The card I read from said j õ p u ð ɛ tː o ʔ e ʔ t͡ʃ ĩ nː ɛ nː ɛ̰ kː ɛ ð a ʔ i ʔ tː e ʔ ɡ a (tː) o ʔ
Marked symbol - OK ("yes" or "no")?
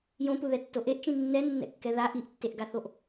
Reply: no